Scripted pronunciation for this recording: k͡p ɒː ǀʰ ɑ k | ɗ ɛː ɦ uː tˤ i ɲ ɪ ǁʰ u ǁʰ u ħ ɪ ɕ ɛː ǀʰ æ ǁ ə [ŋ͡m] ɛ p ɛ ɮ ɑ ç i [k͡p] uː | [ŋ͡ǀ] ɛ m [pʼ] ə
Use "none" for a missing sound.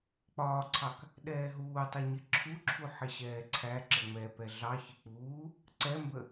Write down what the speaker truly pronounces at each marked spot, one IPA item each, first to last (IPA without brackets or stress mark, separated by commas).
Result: ŋ͡m, k͡p, ǀ, b